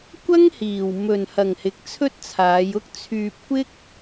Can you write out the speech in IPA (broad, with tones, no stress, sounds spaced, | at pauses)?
kʷ ɐ˥ ŋ h iː˨ w m ɵ˨ n h ɐ˨ ŋ h ɪ˨˥ k̚ t͡sʰ ɵ˥ t̚ t͡sʰ aː˨˧ j ʊ˥ k̚ t͡sʰ yː˧ p̚ kʷ ɪ˥ k̚